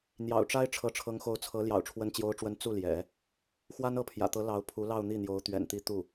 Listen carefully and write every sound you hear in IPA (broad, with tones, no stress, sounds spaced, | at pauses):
n̪ j ɑ̰˨˩ ʊ̯ ʈ͡ʂ a˥ ɪ̯ ʈ͡ʂʰ ɤ˧˥ ʈ͡ʂʰ ɤ˧˥ ŋ x o˧˥ ʊ̯ t͡sʰ ɤ˧˥ l j ɑ̰˨˩ ʊ̯ ʈ͡ʂʰ w ə˧˥ n t͡ɕ j o˧˥ ʊ̯ ʈ͡ʂ w ə˧˥ n t͡s u˥˩ l j ɛ̰˨˩˦ | x w a˥ n ɤ˧˥ pʰ j ä̰˨˩ t̪ ɤ˧˥ l ɑ˧˥ ʊ̯ pʰ u˧˥ l ɑ˥˧ ʊ̯ n̪ i˥˩ n̪ j o˧˥ ʊ̯ t̪ ɥ ɛ̰˨˩ n t̪ i˧˥ t̪ u˥˩